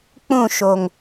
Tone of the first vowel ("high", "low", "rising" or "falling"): falling